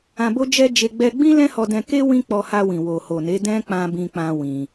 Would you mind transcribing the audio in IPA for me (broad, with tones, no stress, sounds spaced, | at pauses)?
ã˧ b o˦ d͡ʒ ɛ˦ d͡ʒ e˧ ɡ͡b ɛ˧ ɡ͡b ĩ˦ l ɛ̃˦ h ɔ˧ d ɛ̃˧ k e˦ w ĩ˦ k͡p ɔ˧ h a˧ w ĩ˨ w o˨ h o˨ n e˨˦ d ɛ̃˦ k͡p ã˧ b ĩ˦ k͡p ã˦ w ĩ˧